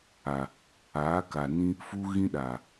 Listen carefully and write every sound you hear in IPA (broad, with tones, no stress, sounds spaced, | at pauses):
a˨ | aː˨˦ k a˨ n ĩ˦ | f u˦ ɣ ĩ˦ ɗ aː˨